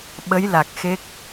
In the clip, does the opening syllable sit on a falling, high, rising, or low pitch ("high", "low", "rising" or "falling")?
rising